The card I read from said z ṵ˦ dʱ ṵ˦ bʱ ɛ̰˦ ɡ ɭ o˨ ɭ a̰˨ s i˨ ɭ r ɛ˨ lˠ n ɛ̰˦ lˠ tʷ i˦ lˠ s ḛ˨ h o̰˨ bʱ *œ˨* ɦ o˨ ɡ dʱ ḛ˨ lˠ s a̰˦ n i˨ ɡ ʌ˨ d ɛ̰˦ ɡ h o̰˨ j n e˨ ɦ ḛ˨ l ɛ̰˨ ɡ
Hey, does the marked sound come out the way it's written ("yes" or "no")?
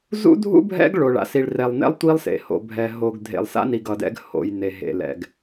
no